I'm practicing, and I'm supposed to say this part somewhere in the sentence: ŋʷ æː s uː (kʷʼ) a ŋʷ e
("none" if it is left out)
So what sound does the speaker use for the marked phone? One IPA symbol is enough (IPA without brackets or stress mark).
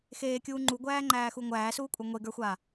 kʷʼ